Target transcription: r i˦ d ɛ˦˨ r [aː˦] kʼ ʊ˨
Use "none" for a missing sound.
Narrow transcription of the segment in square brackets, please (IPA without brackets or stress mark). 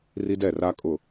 a˦